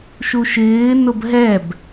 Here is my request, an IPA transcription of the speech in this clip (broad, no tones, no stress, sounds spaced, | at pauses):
ʃ u ʃ ɪː n ʊ b ɦ ɛ b